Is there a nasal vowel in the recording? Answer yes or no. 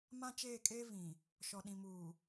yes